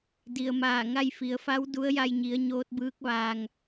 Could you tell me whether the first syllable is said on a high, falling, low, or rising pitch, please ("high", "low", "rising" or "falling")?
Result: low